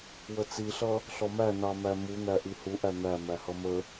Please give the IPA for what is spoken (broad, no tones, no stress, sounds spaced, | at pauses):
w ə t͡s i ɬ ʌ | ɬ ɔ m æ n ɑ m æ m u n̪ æ ʔ i h u ʔ æ n̪ æ m æ h ʌ m ə